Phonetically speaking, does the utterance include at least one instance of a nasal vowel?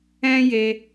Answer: yes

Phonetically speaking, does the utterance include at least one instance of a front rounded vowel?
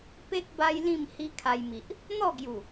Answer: no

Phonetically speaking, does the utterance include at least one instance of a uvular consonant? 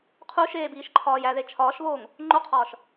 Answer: yes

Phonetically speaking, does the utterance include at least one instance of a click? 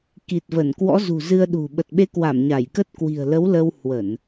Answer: no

